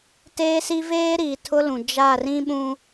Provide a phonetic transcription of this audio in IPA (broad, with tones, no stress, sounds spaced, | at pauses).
t eː˦ s i˦ v eː˦ ɾ iː˨ tʰ ʊ˦ l ũ˨ d͡ʒ a˦˨ r ĩ˦ ɓ ũ˦